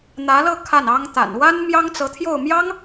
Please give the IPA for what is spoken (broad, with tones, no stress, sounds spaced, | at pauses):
n̪ ä˧˥ l ɤ˥˧ kʰ a˥˩ n ɑ˥ ŋ t̪ a̰˨˩ n w a˥ n m j ɑ˥ ŋ t͡s ɤ˧˥ t̪ʰ j o˥˩ ʊ̯ m j ɑ˥ ŋ